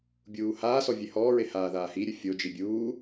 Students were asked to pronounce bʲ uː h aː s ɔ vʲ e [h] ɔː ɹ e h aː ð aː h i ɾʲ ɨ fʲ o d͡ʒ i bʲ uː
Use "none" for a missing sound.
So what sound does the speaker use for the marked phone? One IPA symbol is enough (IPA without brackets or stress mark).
h